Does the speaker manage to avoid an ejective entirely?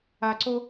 yes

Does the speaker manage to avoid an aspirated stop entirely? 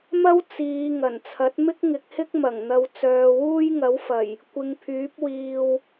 no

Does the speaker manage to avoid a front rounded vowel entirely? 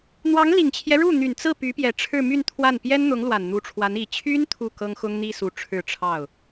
no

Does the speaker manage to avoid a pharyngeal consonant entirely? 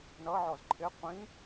no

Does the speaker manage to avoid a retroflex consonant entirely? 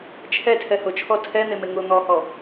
yes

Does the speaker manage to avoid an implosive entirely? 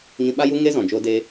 no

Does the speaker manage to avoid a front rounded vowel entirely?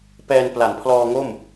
yes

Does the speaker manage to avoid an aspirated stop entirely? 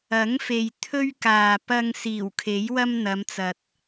no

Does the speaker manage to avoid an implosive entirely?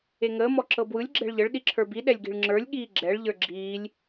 no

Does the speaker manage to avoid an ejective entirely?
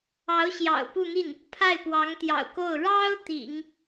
yes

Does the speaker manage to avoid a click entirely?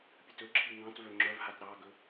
no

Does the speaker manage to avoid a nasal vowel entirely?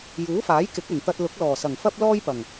yes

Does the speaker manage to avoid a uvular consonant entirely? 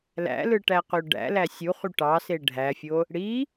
no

